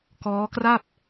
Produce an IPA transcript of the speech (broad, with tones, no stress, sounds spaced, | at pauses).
k ɔː˦˥ k r a˥˩ p̚